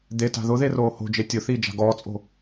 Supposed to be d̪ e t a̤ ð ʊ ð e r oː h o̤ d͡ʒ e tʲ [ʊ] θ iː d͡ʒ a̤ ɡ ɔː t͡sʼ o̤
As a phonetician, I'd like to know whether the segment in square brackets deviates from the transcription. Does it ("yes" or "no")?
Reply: no